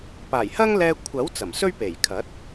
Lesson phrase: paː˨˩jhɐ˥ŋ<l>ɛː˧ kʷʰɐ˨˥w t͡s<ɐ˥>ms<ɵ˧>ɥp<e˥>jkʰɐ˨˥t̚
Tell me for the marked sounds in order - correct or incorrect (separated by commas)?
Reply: correct, incorrect, incorrect, incorrect